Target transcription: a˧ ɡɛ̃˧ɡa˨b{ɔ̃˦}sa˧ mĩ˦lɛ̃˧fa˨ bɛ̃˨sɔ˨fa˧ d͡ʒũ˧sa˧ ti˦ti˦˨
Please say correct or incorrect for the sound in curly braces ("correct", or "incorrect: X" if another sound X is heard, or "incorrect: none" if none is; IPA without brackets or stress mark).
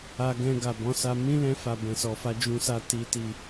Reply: incorrect: ɔ̃˨˦